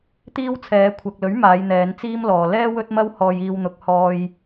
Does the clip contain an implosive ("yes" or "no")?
no